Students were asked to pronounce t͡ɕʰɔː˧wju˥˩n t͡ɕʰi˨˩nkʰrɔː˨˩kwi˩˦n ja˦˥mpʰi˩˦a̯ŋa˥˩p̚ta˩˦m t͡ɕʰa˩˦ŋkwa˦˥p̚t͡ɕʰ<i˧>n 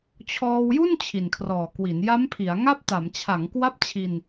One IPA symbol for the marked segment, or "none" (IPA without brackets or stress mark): i˧